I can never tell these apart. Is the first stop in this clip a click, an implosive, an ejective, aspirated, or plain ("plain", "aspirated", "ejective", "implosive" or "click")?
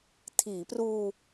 aspirated